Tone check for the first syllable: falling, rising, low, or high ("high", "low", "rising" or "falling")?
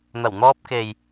low